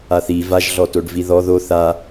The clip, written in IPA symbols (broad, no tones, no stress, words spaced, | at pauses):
aθi vaʒɮɔtoɖvi ðɔ ðo θa